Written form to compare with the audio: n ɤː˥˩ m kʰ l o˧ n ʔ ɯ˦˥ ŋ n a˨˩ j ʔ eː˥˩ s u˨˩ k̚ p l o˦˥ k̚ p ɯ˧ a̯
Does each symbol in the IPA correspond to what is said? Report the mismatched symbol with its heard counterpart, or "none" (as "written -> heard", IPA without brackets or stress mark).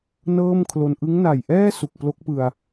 eː˥˩ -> ɛː˥˩